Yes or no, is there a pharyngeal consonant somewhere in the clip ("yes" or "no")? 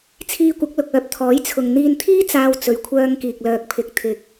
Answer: no